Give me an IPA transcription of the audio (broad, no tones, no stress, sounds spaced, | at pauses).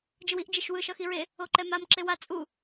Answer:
d͡ʒ ɯ w i ʔ d͡ʒ e ʃ w ɯ ʃ ʌ x i ɹ e | o ǃ ɛ m a m ǁ e w a t͡sʼ u